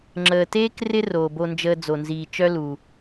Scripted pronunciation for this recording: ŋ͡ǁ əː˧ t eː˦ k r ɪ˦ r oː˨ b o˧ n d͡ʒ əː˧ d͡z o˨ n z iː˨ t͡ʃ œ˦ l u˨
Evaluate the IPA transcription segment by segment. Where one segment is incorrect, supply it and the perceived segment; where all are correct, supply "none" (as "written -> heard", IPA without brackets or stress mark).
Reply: none